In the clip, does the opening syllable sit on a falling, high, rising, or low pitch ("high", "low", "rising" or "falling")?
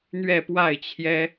falling